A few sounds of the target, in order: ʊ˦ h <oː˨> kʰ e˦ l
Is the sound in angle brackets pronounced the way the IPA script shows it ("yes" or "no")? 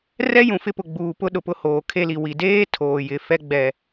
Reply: yes